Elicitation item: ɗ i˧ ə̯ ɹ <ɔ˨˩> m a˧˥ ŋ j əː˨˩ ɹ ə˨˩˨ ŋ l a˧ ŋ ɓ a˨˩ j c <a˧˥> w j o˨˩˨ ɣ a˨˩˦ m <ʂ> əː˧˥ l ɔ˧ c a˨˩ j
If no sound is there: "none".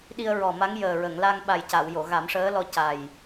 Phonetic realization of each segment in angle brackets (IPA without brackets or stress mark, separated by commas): ɔ˨˩, a˨˩˨, ʂ